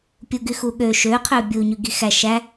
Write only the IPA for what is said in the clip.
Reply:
pʲuɡyxuɠø ʃø qʰøbʲu ɲyɡixæ ʃæ

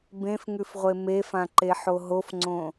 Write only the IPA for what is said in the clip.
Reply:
bẽfŋʉfʁʷe mefãǃeħo ɦofŋ͡ǀõ

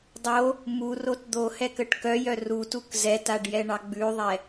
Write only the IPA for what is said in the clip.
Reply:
dˤo | murot d̪ohɛkəʈ kœjœ rutuk zɛtaɖjɛɳɑ ɡ͡bʉðˤɛ

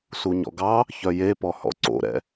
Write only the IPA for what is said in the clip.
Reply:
suɲɔ̰ɡɑ | çœjepɔ hɔ̰ǀo̰ɾɛ̰

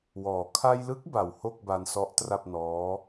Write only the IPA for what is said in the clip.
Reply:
wɔː˨˩ kʰa˧jlɯ˦˥k̚ ba˨˩who˥˩k̚ba˧nsɔ˦˥ʔ tra˥˩p̚nɔː˦˥

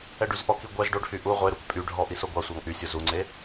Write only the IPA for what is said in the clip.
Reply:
ɛɖyzʔɔki ɡʷɛz ɖoɖhy ʔu ʁʷeɾuk pʼyɖʱɔ ʔisoɡʷɑsʷɑŋ ʔysʲo zuŋ͡ǀe

